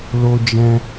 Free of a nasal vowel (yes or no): no